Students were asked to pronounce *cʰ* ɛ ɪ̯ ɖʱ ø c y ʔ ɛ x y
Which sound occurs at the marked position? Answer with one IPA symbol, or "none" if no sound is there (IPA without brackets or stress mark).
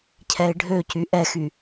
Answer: cʰ